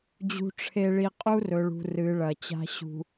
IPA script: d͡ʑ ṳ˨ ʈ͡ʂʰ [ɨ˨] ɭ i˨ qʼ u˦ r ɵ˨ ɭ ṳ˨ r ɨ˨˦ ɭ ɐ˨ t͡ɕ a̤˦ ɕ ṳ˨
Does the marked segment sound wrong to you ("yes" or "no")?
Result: yes